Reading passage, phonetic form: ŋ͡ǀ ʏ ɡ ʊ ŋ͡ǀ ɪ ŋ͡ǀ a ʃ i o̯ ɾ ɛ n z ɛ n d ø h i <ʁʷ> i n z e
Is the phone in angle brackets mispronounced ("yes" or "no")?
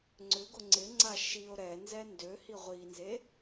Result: no